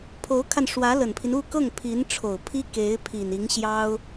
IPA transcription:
pʰ o˧˥ ʊ̯ kʰ a˧ n ʂ w ä˧˥ l ə˨˩ n pʰ i˦ n u˥˧ k ɤ˥˩ ŋ pʰ i˧˥ n ʈ͡ʂʰ o˨˩ ʊ̯ pʰ i˥ k e˧˥ ɪ̯ pʰ i˨˩ n i˧˥ ŋ ɕ j ɑ˥ ʊ̯

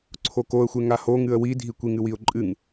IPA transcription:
ǀʰ o k o ə̯ xʷ e ŋ a h o ŋ ɨ ə̯ w i dʱ i kʷ i ŋ ɨ w i ʊ̯ ǃʼ ɨ ŋ

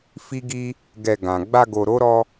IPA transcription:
f i˦ ɡ i˦ | ɡ ɛ˧ ɡ ã˨ ɡ͡b a˧ ɡ o˨ ɾ o˨˦ ɾ ɔ˧

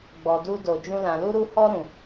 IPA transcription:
ɡ͡b ɔ˨ d u˧ d o˨ d͡ʒ ũ˧ l ã˨ l u˧ ɾ u˧ h ɔ˧ ɾ ũ˨

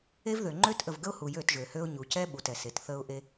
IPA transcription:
e˦ v ð ø˨ ŋ͡ǃ ø˦ t ʔ ə˨ v ɡ ə˦ ʊ̯ h u˨ j ø˦˨ t ʒ ø˨ h ø˦ ʊ̯ ɲ u˨ c ɛ˦ ɓ u˨ t ɛ˨ s e˨ t θ ə˦ ʊ̯ ʔ e˦

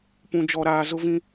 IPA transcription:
p ũ˦ d͡ʒ ɔ˦ ɾ aː˦ z ʊ˦ v ĩ˦

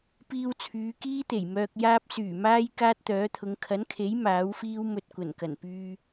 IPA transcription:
p iː˧ w t͡sʰ yː˨˧ k iː˥ t̪ e˨˩ j m œː˧ k̚ j aː˥ p̚ s yː˨˩ m aː˥ j k aː˥ t̚ t̪ œː˨˥ t̪ʰ ʊ˨˧ ŋ kʰ ɐ˨˥ n kʰ e˨˥ j m aː˨˥ w f iː˥ w m ɵ˧ t̚ kʷ ɐ˨˩ n k ɐ˨˩ n p yː˧

